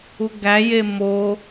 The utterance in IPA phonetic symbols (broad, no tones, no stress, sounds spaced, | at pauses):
u ɡ æ j e m o